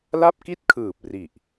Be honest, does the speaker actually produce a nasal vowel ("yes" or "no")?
no